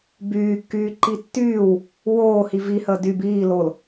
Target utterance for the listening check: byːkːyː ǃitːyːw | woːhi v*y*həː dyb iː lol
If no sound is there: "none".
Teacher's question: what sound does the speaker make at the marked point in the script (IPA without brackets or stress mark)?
i